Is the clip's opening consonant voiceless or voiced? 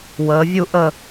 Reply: voiced